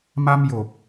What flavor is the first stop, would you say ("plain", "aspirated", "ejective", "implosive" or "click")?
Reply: plain